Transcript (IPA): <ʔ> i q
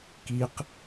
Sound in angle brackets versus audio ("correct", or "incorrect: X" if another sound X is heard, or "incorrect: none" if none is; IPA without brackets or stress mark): incorrect: k